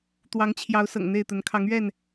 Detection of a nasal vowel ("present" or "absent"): absent